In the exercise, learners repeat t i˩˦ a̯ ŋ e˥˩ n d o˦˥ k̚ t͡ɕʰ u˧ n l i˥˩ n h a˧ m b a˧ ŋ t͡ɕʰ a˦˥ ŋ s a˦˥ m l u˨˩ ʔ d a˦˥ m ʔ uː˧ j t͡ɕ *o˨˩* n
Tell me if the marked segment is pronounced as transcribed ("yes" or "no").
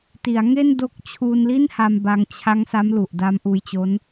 no